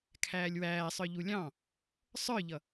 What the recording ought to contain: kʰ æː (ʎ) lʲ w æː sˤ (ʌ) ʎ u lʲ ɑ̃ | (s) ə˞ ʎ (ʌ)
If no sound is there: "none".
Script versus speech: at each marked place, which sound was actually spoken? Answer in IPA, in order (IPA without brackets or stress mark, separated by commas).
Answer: none, ə˞, sˤ, ʌ